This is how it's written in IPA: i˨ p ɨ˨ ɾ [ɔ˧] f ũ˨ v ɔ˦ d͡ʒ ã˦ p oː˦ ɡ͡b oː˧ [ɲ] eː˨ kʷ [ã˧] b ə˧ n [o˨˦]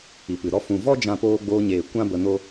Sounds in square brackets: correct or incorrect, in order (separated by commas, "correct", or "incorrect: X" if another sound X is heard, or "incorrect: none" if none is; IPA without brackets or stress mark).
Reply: correct, correct, incorrect: ã˦, incorrect: o˦